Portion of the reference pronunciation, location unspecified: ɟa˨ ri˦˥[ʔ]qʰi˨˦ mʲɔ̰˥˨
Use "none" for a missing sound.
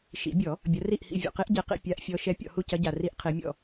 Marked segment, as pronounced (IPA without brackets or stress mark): ʔ